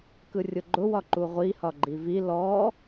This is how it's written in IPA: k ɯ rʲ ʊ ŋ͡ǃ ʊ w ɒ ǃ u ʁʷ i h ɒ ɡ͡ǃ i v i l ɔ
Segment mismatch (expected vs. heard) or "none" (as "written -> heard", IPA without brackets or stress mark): ŋ͡ǃ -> ɡ͡ǃ